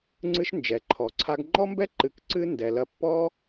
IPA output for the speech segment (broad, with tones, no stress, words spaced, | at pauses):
ŋ͡ǀɨ˦ʃ nd͡ʒɛ˨ǃʰɔ˨ǀʰa˦ɡ ŋ͡ǃɔ˦mbɛ˦ǃɨ˨kǀɨ˧ ndɛ˨lɐ˧ pːɔ˦